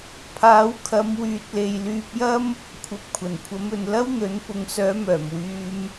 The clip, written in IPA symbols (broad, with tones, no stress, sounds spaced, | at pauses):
pʰ aː˨˥ w kʰ ɐ˨˧ m w yː˨ t̚ l e˨ j l yː˧ p̚ j ɐ˥ m | kʷʰ ɐ˨ p̚ kʷʰ ɐ˨˩ n kʷʰ ɐ˨˥ m ɵ˨ n l ɐ˥ w n̪ ɵ˨˥ n p ʊ˨ ŋ s œː˨˥ m œː˨˩ m w yː˧ m